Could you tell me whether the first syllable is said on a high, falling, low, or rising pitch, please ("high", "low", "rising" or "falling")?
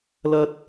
high